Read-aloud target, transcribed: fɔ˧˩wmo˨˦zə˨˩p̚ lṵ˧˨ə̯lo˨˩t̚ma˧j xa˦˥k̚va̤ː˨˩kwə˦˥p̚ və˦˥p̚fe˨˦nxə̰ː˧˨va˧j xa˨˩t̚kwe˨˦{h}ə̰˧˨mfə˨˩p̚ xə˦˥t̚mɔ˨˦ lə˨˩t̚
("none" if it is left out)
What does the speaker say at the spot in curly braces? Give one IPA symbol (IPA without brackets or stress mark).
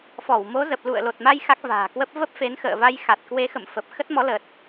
x